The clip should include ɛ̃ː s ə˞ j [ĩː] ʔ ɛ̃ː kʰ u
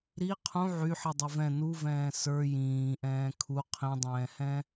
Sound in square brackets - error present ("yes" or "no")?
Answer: no